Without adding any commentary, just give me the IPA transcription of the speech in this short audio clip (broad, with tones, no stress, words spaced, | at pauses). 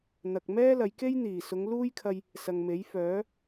n̪ɐ˨k̚ mɛː˥lɐ˨˧jke˥j n̪iː˨˩sʊ˨˧ŋ luː˥jkʰɐ˧j | sɐ˨ŋme˨˥jfœː˨˥